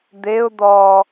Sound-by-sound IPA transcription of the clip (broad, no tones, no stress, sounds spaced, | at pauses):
d̪ e ʊ̯ d̪ ɔ